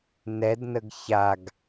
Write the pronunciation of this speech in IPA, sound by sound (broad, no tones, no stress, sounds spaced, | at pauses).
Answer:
n ɛ d n ə ɡ ç a ɡ